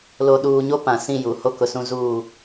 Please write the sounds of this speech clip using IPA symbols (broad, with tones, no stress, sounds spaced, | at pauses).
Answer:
l o˨ ɗ uː˨ ɲ o˦ p ã˨ s ĩ˦˨ j u˨ h o˦ k ʊ˨ s ũ˦ z uː˦˨